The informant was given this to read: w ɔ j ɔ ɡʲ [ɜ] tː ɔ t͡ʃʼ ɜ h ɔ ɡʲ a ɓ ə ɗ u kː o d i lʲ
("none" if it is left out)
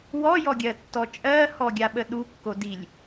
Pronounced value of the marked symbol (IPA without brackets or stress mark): ɜ